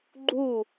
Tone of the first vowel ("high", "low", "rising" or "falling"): falling